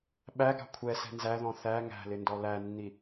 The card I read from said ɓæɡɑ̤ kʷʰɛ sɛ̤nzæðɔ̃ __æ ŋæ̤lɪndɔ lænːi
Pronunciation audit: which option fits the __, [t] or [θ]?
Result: θ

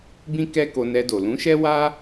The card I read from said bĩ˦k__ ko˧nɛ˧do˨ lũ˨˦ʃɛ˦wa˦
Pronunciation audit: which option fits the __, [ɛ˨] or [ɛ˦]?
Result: ɛ˦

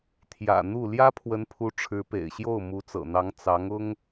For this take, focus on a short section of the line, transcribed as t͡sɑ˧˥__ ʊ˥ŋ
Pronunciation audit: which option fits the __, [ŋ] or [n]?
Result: ŋ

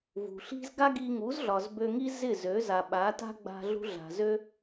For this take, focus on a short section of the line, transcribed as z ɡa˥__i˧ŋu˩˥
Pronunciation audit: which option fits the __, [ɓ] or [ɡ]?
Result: ɡ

